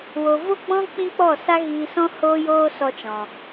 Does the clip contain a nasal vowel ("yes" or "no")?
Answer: yes